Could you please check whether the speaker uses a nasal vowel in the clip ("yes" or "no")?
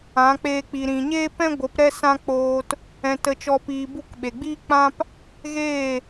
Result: yes